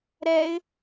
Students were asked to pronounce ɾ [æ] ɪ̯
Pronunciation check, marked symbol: incorrect: ɛ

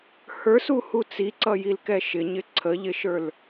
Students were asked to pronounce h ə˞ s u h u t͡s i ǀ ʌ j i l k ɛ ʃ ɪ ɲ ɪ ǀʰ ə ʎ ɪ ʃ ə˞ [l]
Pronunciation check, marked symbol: correct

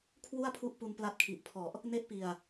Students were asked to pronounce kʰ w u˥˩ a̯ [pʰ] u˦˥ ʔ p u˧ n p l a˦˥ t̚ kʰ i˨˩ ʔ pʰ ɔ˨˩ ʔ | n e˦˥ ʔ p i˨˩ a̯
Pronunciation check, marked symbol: correct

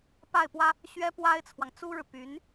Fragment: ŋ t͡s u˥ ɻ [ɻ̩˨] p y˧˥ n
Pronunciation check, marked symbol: correct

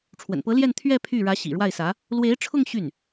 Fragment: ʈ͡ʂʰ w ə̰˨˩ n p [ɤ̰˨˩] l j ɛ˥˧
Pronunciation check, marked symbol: incorrect: ɤ˧˥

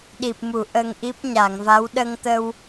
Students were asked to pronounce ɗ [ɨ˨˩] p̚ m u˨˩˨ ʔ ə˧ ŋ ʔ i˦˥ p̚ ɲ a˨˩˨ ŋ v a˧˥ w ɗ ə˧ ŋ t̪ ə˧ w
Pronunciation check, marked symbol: incorrect: i˨˩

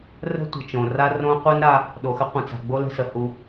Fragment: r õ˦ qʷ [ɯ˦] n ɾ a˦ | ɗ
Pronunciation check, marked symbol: incorrect: ə˦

